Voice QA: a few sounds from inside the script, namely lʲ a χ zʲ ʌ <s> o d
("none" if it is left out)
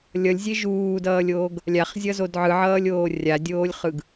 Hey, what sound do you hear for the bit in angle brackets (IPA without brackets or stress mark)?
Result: z